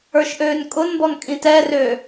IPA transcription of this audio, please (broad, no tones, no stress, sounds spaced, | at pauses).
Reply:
ə˞ ʃ ʔ øː n kʼ ʊ n b ɔ n kʼ ĩ t ɛ r ø